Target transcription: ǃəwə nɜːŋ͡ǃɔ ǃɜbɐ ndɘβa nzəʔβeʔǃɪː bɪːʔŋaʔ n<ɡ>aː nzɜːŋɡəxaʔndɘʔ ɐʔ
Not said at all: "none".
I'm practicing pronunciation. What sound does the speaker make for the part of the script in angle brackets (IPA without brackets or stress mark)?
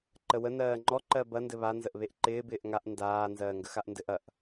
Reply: d